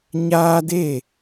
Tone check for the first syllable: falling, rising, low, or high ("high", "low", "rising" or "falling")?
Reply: high